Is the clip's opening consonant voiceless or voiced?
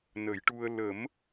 voiced